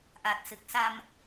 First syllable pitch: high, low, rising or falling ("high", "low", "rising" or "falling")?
low